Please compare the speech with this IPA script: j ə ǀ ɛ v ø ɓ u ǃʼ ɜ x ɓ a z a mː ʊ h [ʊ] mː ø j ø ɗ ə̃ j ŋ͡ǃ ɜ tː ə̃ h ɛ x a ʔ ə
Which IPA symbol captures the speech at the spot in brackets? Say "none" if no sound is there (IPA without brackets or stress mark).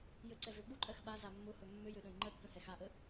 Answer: ɵ